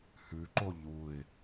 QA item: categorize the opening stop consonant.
click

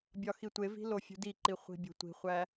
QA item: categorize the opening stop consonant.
plain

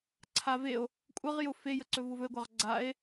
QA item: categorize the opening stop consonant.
click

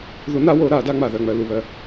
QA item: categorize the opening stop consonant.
plain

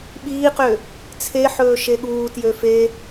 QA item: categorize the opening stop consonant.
implosive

